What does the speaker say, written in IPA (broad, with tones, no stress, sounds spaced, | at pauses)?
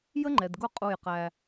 j ə˦ ŋ͡ǃ ɛ˨ d ɡ ʊ˦˨ qʼ u˦˨ j q æ˦